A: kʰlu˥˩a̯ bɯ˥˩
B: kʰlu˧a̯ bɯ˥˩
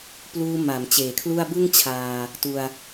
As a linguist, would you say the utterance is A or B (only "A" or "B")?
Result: A